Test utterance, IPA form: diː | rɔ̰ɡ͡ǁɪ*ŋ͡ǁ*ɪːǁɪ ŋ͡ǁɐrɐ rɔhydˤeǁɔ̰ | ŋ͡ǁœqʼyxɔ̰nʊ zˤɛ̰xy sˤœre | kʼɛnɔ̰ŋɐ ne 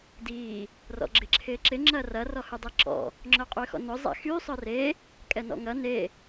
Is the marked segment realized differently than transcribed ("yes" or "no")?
yes